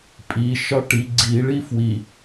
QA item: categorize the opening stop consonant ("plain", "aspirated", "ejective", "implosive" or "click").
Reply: ejective